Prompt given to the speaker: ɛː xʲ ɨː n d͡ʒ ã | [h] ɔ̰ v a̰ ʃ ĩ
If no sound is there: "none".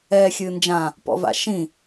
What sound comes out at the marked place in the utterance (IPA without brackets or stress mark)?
p